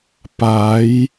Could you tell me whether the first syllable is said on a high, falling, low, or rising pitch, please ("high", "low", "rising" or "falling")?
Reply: rising